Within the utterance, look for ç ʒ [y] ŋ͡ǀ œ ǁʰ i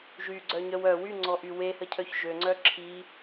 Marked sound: incorrect: ø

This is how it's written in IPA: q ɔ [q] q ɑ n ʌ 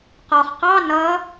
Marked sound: incorrect: χ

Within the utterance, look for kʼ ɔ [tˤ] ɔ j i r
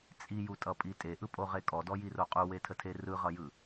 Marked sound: incorrect: d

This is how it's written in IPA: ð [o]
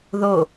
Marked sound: correct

